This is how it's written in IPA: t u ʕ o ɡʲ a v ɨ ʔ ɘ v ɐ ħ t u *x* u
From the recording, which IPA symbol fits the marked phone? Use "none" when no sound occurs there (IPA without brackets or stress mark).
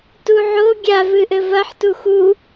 x